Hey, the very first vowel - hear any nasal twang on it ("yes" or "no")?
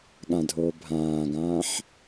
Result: yes